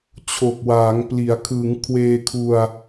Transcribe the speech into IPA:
t͡ɕʰo˨˩k̚waː˩˦ŋpli˩˦a̯ kʰɯː˩˦ŋkʰweː˧ kʰu˧a̯

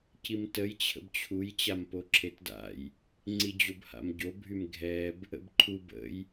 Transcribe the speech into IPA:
cimtəj t͡ɕʰə̰bt͡ɕʰuj t͡ɕampoǁʰetda̰j | ŋ͡ǀid͡ʑobha̰mɟo bʱymɡʱɛb | ə̰bǃʰu bə̰j

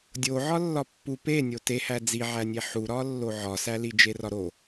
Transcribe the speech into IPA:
dʲo ʕɒlːɒpːu pe nʲotehæ d͡ziʕænʲe ħuɾɒ lːoʕɒsæ lid͡ʒerɒɾo

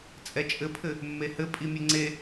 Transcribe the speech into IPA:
t͡sʼɛt͡ʃʼɘpʰɘ | mːehɘ pʼimʲɘŋ͡ǀe

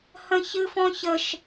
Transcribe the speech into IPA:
hə̃çɨfɔ̃çəʃ

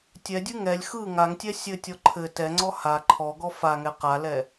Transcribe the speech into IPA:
tʲɛdʲɯ ŋɛlʲ xɯ ŋaŋtʲɛ sʲɘtʲɔ ǃʰɘ tɛŋ͡ǀɔ ha ǃʰɔɡɔ faŋɛ qalɛ

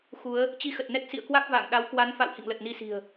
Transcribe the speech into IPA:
xu˨˦ə̯ | t͡ɕi˧xə˨˩t̚nɛ˦˥t̚ sḭ˧˨ə̯kwa˦˥k̚ va̰ː˧˨ŋ ɗa˨˦w kwa˨˦nfa̰˧˨w hḭ˧˨ŋlə˨˩t̚ni˧ si̤˨˩ə̯

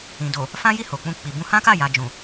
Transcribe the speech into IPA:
ĩ˨ do˨ | fã˦ji˦˨ ho˨k͡pũ˧ k͡pi˨bũ˧hã˦ka˦˨ ja˨d͡ʒũ˨

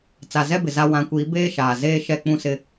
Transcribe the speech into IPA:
t͡sa˨zɛ˦bɪ˨ za˨ wã˨˦kʷiː˨˦ beː˦ʃaː˨ zeː˦ʃɛ˦˨ k͡pũ˦sɪ˦

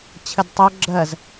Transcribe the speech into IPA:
t͡ɕʰɘdtˤo ɡ͡ǁɜz

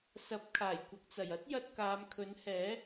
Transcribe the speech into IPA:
sɐ˨˥p̚kʰaː˨˩jkʷɐ˨k̚t͡sɐ˨˩j ɐ˥t̚jɐ˧t̚kaː˨˧mkʰɵ˨˥n hɛː˨˥

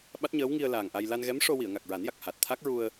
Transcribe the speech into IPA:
ɓa˦˥t̚ɲəː˧˥wŋi˧ə̯ laː˨˩ŋʔa˧j la˧nɣɛ˧˥mʂo˧ wi˨˩˨ə̯ŋa˨˩k̚ɹa˨˩˦nja˨˩k̚ ha˨˩t̚t̪ʰa˦˥k̚ɹu˧ə̯

